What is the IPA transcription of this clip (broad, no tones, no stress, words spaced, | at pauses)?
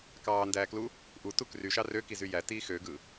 kɑːndæːklu | ʔutu kryʃɑ røkizy jætiː xøɡɯ